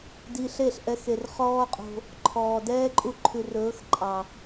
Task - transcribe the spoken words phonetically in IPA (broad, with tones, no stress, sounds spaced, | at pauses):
d i˧ ɬ e˦˨ ɬ ʔ ɛ˧ x e˨ r χ ɔː˦ qʼ o̤˧ | ǃʰ ɔː˨ d ɛː˦ ǃʼ u˧ ǃʰ ʉ˨ r ɵː˨˦ x ǃʼ ɑ˨